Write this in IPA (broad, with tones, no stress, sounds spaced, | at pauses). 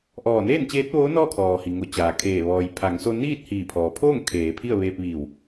ʔ ɔː˧˩ n eː˥˨ n t͡ɕ eː˧˥ t̚ ʋ oː˧˥ n ɔː˥˨ kʰ ɔː˩ h i˩ ŋ o˧˩ t͡ɕ aː˩ kʰ eː˧˩ ʋ ɔː˩ j pʰ a˩˧ ŋ s o˧ n iː˥˨ t̚ h iː˧˩ pʰ ɔː˩ pʰ oː˥˨ ŋ kʰ eː˩˧ pʰ i˥˨ ə̯ ʋ eː˧ p̚ ʋ iː˧˩ w